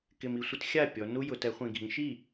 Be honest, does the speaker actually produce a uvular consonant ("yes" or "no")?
yes